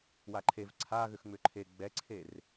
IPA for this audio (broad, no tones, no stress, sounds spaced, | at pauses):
w a ǃʰ e v ǀʰ a ɣ ʏ x ŋ͡m ʏ ǃʰ e ɡ͡b ɛ ǀʰ e r